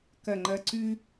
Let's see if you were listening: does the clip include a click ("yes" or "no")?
yes